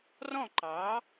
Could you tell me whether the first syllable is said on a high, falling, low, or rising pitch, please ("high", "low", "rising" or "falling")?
falling